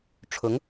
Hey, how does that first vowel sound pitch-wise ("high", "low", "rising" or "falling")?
rising